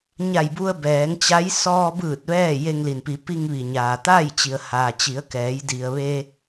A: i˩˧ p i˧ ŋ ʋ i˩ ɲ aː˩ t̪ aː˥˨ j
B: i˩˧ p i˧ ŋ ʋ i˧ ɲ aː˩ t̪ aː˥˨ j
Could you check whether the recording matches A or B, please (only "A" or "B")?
A